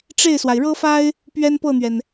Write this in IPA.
ʈ͡ʂ e˥˩ ɪ̯ s w a˩ ɪ̯ ɻ ɤ˥ f a˥ ɪ̯ | p ɥ ɛ˥ n p ɤ˥˩ n̪ ɥ ɛ˩ n

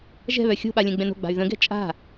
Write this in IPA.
ʒ ɛ̤ β œ xʲ o̤ ɓ a lʲ ɛ̃ ɡ͡b ɛ̃ n o̤ ɡ͡b a̤ y̯ ð ə̃ ɡ ɛ̤ t͡ʃʼ a̤

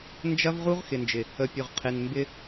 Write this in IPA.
n d͡ʒ ɐ˦ v ʁ u˦ ʁ x ɪ˨ n d͡ʒ ɪ˨ | ə˨ pʲ ʊ˨ ʁ qʰ e˨ n m b ɪ˦

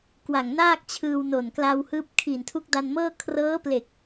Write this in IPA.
k w a˨˩ ŋ n aː˥˩ k̚ t͡ɕʰ ɯː˧ w n o˨˩ n k l a˧ w h ɯː˦˥ p̚ kʰ iː˨˩ n tʰ u˦˥ k̚ d a˧ n m ɤː˥˩ kʰ r ɤː˦˥ p l e˨˩ k̚

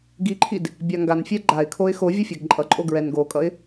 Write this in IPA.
ɡ i ǃʰ i d | bʲ a ŋ ɡ a n fʲ ɛ ɡ͡ǃ a ɪ̯ kʰ o ɪ̯ x o vʲ ʌ fʲ ɛ ɡ ǃʼ ʌ ǃʼ o ɡ ɹ ɛ n ɡ o kʼ ʌ ɪ̯

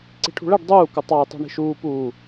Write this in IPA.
ǀ i̤ ʈʰ ṳ ɭ ɛ ɖ dˤ uː k ʊ tˤ ɑ j tˤ ṳ ɳ i̤ ʃ uː p uː

